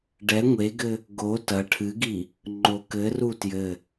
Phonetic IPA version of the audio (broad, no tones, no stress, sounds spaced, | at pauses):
ɖ ɛ ŋʷ e ɡ ɘ | ɡ o t ɐ ʈʰ ɨ ɡ i | ŋ͡ǃ o k ɘ r u t j ɘ